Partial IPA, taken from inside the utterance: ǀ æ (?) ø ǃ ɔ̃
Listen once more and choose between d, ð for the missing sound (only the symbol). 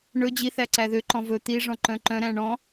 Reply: ð